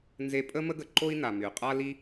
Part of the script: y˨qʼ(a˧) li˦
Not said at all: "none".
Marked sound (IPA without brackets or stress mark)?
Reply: a˦